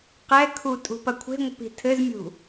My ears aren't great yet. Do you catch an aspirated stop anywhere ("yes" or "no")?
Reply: yes